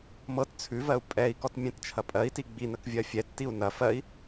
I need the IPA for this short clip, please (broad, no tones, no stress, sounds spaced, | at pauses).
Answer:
m ɤ t t͡sʰ ʉ v ɜ u̯ pʼ ɛ i̯ k ɔ t mʲ ɛ̃ t t͡ʃʰ ɐ pʼ ɜ i̯ t i ɡ͡b i n ə k vʲ ɜ fʲ ɛ tː i u̯ n ɐ f ɜ i̯